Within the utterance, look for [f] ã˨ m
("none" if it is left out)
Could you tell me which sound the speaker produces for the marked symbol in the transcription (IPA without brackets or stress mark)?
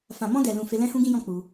f